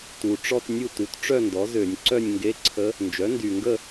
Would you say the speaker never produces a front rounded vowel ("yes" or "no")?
no